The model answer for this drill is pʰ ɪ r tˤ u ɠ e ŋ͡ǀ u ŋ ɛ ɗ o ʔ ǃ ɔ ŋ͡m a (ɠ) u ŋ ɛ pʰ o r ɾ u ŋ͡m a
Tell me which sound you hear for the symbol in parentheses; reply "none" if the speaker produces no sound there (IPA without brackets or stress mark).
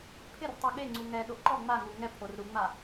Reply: ŋ